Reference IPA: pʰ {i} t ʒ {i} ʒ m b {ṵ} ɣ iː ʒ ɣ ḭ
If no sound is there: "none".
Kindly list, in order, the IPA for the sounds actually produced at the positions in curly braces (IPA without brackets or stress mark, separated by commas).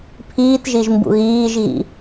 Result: iː, i, ṵ